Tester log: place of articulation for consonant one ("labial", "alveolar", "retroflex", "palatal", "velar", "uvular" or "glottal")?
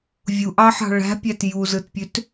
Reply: labial